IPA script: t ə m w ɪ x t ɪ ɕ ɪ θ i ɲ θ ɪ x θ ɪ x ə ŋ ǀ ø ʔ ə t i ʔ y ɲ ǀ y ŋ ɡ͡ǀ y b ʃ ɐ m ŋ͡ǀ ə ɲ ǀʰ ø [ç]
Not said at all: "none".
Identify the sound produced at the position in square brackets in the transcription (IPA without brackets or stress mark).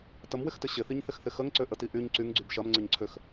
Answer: x